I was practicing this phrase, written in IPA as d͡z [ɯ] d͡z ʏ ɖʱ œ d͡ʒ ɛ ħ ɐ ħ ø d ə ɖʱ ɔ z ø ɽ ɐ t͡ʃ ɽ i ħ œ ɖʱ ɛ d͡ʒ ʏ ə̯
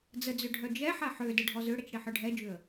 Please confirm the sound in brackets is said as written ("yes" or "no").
no